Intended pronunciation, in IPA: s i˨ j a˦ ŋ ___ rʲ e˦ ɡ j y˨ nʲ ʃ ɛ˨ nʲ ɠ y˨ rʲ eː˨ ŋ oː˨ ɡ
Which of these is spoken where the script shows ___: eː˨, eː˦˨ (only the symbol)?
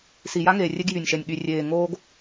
eː˨